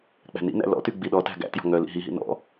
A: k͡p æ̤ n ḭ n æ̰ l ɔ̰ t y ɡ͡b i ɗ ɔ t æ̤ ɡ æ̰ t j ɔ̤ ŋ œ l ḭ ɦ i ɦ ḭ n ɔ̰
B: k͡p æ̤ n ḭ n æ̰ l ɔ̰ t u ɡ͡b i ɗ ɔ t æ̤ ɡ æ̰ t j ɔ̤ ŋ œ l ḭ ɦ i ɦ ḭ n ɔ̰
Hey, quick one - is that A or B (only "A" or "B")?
A